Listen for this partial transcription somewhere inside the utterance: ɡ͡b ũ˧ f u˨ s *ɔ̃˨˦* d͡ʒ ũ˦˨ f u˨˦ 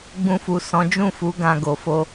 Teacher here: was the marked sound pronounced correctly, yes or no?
yes